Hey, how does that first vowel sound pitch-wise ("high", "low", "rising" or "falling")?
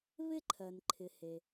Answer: high